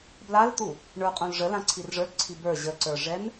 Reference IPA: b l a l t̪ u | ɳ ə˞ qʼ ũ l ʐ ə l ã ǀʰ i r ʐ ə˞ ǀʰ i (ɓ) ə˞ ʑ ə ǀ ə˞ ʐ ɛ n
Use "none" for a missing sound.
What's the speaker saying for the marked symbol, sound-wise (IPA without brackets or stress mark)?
b